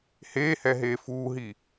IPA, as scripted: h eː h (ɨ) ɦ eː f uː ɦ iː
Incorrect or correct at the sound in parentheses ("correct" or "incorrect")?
incorrect